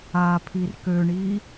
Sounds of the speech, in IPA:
apʰir køɳi

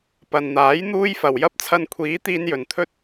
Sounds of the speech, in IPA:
pɐ˨nn̪aː˨˥j n̪uː˥jfɐ˨w jɐ˥p̚t͡sʰɐ˧nkʷʰiː˨˥ t̪iː˥njɵ˨n t̪ʰɵ˥t̚

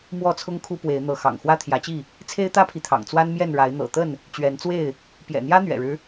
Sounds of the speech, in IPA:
mwɔ˥˨t͡sʰʊ˦ŋ kʰu˦pwe˨˦ɪ̯ n̪ɤ˨˦xɑ̰˨˩ŋ xwä˦t̪ʰjä˨˦t͡ɕi˥˨ | t͡sʰe˦ɪ̯t̪ä˦pʰi˨t̪ʰɑ̰˨˩ŋ t͡swa˦nmjɛ˥˨nɻa˨˦ɪ̯ n̪ɤ̰˨˩t̪ə˥˨n | t͡ɕɥɛ˨˦nt͡swe˥˨ɪ̯ | pjɛ̰˨˩n̪jä˦n̪ɥɛ̰˨˩ɻɻ̩˦

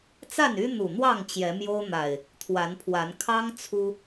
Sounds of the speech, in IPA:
t͡sa˥˨ny˦n̪u˨˩n̪wɑ˥˨ŋ t͡ɕjɛ˨˦ mjo˦ʊ̯n̪a˨˩ɪ̯ | t̪ʰwa˨˦npʰwa˨˦n kʰɑ˦ŋ t͡sʰu˦

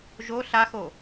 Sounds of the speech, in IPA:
ʒo ɬaxo

